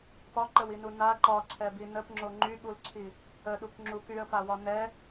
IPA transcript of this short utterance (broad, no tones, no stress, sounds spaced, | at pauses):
p ɒ ǃ ə w i n u n a ǃ ɒ ǀʰ ɛ b i n ə p ŋ͡ǁ o ŋ͡ǃ y ɠ u l ǀʰ i | ə ɗ u k ŋ͡ǁ u k y ə̯ p a w ɒ n ɛ